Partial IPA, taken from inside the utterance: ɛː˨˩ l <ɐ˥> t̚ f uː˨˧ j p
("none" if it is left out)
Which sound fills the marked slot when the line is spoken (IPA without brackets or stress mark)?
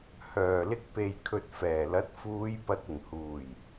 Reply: ɐ˨˥